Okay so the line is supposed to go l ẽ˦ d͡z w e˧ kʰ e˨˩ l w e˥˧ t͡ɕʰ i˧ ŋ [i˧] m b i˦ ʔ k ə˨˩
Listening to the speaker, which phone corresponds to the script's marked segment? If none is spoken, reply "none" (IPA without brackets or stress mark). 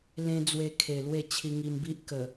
i˧